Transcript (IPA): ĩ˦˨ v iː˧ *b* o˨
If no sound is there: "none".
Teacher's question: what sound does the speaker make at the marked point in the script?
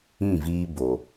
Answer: b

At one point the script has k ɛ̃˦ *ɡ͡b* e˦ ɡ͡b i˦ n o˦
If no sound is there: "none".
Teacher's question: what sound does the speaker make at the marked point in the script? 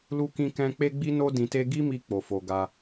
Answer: k͡p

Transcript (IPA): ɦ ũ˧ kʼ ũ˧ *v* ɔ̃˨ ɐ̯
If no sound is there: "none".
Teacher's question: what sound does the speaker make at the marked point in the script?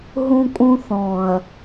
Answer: θ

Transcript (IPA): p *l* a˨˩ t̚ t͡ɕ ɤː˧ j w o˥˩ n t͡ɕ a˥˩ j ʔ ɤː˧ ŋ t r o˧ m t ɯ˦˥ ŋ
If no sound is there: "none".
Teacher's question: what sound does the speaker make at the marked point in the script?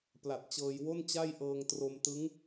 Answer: l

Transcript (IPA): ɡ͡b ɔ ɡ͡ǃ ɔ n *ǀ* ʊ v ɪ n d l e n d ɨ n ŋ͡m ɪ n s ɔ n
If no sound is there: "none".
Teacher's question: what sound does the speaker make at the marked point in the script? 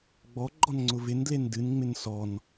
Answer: ŋ͡ǀ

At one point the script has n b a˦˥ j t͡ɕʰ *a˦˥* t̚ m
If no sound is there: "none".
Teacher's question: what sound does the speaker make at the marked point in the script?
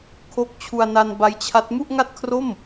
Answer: a˦˥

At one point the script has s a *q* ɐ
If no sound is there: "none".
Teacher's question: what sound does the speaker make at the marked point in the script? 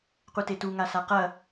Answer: q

